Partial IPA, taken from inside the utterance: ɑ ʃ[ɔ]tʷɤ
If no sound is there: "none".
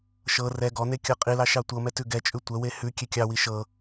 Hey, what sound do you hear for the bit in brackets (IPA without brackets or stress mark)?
ɑ